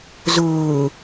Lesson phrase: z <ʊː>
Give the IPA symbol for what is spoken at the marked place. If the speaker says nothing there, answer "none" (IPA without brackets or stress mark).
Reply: ʊː